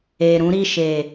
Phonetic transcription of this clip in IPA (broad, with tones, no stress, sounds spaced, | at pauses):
e˨ ɾ ũ˨˦ ɾ i˦˨ ʃ e˨